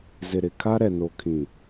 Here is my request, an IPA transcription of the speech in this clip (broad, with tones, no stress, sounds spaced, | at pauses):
z ɪ˨ ɾ ɪ˨ kʰ a˦ ɾ ɛ˨ n o˨ kʰ ĩ˨